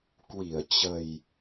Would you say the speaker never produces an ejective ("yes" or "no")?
yes